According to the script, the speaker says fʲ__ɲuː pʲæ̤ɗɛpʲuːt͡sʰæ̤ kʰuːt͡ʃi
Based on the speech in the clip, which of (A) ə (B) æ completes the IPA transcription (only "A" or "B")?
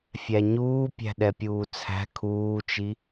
B